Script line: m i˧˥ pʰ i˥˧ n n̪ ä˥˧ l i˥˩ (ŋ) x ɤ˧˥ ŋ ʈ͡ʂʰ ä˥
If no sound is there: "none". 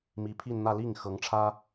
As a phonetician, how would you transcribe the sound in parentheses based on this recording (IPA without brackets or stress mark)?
ŋ